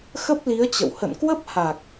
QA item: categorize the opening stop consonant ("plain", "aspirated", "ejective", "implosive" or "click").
plain